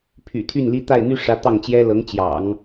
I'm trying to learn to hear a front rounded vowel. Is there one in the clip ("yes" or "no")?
yes